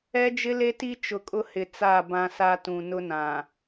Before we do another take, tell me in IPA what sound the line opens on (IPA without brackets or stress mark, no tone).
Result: ɛ